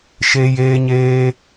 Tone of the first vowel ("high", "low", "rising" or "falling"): high